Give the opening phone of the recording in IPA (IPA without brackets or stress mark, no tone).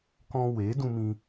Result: k